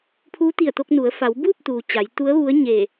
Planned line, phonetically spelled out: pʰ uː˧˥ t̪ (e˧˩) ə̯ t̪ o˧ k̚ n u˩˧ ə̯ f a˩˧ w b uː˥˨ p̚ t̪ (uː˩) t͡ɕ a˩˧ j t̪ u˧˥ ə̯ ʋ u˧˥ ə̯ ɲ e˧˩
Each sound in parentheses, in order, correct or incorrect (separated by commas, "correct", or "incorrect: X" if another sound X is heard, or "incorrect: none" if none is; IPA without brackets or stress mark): incorrect: i˧˩, correct